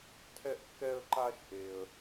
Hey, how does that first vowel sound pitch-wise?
high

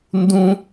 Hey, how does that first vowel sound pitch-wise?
high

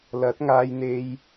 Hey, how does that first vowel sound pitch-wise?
rising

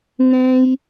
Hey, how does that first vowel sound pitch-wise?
high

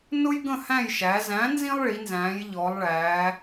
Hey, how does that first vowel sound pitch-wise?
high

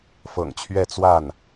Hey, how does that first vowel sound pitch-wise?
low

